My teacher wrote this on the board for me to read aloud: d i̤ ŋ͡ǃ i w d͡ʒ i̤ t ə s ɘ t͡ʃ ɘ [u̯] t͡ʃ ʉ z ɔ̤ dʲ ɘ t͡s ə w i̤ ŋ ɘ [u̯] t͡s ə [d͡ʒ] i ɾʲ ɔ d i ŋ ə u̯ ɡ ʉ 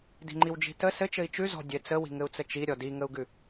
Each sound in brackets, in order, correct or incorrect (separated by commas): incorrect, correct, incorrect